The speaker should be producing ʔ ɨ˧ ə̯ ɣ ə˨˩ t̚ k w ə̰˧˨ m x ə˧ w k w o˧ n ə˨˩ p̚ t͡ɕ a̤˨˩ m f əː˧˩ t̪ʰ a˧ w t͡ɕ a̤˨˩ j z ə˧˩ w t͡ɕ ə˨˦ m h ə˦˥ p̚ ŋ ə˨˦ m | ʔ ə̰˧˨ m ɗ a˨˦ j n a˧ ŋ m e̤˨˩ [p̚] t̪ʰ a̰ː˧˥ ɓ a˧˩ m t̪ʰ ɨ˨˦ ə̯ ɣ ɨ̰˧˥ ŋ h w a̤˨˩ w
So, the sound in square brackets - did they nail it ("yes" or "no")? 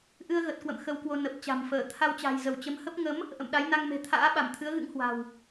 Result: no